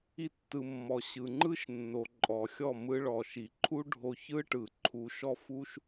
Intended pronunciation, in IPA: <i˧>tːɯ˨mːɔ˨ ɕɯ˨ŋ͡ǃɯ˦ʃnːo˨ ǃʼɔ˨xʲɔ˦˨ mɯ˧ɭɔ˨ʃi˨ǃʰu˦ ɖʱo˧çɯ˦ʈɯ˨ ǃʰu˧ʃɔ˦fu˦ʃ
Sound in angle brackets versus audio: correct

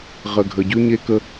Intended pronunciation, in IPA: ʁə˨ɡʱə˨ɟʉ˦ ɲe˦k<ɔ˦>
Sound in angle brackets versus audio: incorrect: ə˦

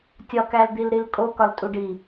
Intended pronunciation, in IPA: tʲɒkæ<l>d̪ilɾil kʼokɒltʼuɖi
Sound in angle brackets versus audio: correct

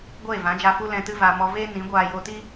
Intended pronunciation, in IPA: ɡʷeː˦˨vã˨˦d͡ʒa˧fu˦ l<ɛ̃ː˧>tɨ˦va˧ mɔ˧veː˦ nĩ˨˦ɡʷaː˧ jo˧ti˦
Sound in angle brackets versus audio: incorrect: ɛ̃˧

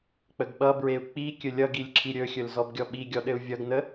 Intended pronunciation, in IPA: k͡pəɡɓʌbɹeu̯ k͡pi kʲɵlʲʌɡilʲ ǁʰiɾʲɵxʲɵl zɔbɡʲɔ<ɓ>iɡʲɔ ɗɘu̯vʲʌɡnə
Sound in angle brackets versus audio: correct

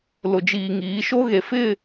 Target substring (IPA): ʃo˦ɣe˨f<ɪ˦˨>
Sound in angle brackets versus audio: correct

